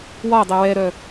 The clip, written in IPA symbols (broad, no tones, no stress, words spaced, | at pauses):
wɒdˤɛ wɛɾœ